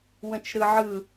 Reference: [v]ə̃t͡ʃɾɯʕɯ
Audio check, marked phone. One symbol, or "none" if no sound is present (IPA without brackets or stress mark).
w